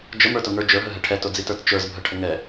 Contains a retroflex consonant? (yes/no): yes